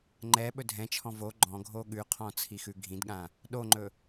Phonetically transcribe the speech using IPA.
ŋ͡ǃ ɛ ɓ ɵ dʱ ɛ̃ t͡ʃʰ ɔ̃ v o ɡ͡ǃ ɔ̃ ɡʱ o ɠ ʉ qʰ ɔ̃ t͡sʰ i x ʉ ɡʱ ĩ d ɠ ã | ɗ o ŋ͡ǃ ɵ

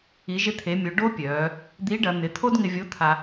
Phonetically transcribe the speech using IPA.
i˩˧ ʒ ɪ˧ t̪ʰ e˩˧ mʲ o˩˧ ɖ o˥ pʲ œː˩˧ | d̪ i˧˥ ɖ ɐ˩˧ n̪ ɪ˩˧ t̪ʰ o˥ d ŋ ɪ˧ vʲ o˧˥ t̪ʰ a˧

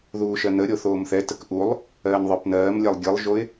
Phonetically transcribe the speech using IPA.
ð uː ʃ ɜ n ə ɾʲ o θ oː m θ ɛ t ə k ʔ u lˠ | ɜː n ðˤ ə˞ p n ɜː m lʲ ɛ lˠ ɡʲ ɯ lˠ ʒ o ɪ̯

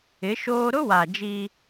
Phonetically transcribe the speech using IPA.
ɪ˨˦ ʃ oː˦ ɾ ʊ˦ w a˨ d͡ʒ i˦

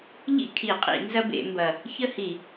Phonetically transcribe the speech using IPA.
ʎ ḭ˥˨ kʰ i˧˩˧ qʼ ḭ˧˩˧ n z ɐ˦ b ḛ˧˩˧ m b ɐ˨˩ | ç ə˥˨ h i˧˩˧

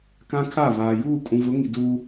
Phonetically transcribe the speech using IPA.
k ã˦ kʰ a˦˨ β aː˨ j uː˦˨ kʼ ũ˨ v ʊ˨˦ ŋ i˨ d uː˦

